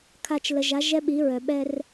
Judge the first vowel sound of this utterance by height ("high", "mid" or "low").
low